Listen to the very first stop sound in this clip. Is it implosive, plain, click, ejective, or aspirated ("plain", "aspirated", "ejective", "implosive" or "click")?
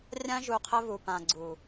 aspirated